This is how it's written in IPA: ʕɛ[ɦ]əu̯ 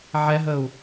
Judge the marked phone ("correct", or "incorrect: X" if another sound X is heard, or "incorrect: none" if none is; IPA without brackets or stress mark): correct